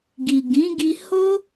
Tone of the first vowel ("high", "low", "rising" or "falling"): low